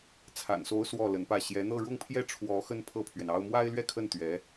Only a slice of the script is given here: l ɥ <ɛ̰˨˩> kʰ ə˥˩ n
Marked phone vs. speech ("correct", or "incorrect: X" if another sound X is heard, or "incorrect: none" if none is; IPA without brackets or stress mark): incorrect: ɛ˥˧